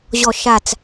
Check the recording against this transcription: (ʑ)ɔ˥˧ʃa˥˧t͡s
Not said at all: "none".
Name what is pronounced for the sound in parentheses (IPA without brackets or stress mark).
ʑ